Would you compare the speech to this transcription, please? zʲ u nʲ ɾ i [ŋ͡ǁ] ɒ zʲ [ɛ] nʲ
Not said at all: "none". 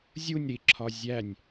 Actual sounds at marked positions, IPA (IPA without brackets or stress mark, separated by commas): ǁʰ, æ